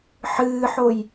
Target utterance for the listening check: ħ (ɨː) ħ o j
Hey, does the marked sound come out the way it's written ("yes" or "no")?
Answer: yes